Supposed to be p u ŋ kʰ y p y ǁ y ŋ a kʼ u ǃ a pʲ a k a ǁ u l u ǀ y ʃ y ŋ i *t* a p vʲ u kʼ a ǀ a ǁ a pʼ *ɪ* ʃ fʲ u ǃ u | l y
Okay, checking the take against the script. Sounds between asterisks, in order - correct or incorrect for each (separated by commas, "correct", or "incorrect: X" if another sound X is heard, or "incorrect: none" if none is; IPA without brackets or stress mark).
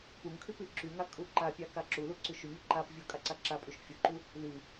incorrect: ǃ, incorrect: y